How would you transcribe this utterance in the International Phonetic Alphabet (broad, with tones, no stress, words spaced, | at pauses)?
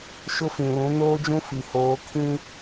ʃʊ˦fĩ˨lũ˨˦ noː˦d͡ʒũ˦ fi˨hoː˨˦ kʰĩ˦